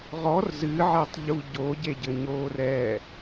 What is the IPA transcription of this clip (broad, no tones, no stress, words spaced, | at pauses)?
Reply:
ʁɔr zɨʕetˤʎu ɟoɟeɟɘɲoːr ɛ